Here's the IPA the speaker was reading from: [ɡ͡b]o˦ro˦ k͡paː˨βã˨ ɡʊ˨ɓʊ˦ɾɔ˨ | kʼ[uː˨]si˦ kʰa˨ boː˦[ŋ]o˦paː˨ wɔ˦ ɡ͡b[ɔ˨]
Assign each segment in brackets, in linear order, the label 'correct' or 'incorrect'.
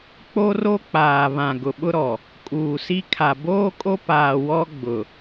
incorrect: k͡p, correct, incorrect: kʼ, incorrect: ʊ˨

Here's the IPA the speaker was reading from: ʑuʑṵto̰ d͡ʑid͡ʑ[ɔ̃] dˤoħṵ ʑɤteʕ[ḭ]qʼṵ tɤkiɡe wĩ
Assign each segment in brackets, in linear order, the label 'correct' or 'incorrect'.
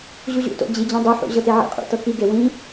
correct, correct

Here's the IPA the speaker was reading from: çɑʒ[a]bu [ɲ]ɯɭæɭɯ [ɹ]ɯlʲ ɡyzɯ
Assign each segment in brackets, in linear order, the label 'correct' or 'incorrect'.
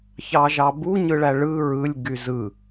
incorrect: ɑ, correct, correct

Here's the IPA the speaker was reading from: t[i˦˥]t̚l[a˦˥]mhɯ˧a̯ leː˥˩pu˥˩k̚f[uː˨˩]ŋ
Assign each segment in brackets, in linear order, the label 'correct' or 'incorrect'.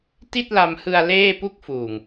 incorrect: i˥˩, incorrect: a˧, correct

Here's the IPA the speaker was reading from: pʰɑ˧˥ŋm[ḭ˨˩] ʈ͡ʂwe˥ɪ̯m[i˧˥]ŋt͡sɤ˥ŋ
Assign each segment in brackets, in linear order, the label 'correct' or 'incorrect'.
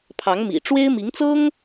correct, correct

